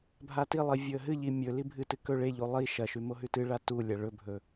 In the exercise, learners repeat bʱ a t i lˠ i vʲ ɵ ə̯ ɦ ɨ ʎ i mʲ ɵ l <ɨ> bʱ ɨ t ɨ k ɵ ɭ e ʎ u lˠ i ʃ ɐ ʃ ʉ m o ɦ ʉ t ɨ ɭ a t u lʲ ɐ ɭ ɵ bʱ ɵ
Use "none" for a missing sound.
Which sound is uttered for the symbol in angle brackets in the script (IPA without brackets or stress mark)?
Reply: i